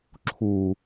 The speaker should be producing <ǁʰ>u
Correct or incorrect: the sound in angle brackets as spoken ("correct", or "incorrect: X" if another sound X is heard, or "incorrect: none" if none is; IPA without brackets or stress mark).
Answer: correct